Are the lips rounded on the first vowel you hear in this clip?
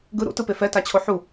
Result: no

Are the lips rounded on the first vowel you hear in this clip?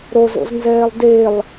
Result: yes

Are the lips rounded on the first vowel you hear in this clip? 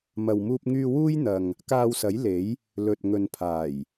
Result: no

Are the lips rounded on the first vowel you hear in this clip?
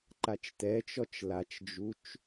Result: no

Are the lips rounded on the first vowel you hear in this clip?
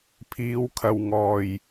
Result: no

